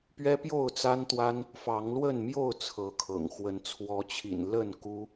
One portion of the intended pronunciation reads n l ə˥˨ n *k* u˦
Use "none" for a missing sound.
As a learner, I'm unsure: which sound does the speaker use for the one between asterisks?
k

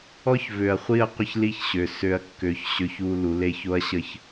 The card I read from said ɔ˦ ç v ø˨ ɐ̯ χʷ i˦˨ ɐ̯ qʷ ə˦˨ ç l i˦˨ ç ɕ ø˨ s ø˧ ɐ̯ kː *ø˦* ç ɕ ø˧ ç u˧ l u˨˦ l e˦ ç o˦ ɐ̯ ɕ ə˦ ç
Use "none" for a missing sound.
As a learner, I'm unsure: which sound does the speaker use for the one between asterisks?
ø˨˦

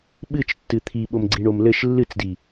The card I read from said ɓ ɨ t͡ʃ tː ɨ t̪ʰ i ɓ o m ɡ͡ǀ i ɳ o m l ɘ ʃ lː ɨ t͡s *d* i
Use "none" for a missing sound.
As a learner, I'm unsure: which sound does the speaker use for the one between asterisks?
d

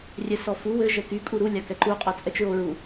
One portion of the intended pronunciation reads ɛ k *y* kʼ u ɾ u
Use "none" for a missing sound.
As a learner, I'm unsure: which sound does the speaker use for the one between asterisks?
y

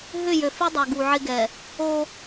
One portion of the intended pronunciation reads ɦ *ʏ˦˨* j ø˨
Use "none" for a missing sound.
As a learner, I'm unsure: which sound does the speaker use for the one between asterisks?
ʏ˦˨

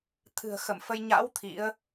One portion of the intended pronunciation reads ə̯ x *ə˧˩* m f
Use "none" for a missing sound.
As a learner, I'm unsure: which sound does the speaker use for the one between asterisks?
ə˧˩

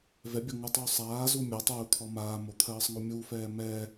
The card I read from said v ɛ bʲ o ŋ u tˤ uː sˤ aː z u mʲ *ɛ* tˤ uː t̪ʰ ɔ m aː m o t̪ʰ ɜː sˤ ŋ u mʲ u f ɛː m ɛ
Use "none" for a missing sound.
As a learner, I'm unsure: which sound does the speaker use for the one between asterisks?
ɜ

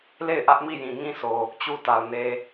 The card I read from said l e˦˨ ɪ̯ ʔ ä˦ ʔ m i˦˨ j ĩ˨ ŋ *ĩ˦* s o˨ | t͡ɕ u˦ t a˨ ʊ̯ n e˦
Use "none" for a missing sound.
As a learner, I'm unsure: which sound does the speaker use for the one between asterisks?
ĩ˦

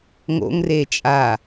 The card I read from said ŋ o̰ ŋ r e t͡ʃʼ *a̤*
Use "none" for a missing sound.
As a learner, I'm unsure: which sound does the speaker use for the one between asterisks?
a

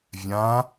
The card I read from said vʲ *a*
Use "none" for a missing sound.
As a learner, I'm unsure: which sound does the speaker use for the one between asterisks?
ã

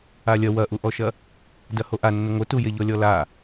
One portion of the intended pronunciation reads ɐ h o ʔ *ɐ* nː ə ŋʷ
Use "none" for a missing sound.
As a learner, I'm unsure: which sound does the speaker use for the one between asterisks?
a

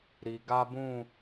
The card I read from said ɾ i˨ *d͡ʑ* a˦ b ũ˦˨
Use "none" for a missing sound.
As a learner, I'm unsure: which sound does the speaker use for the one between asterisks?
ɡ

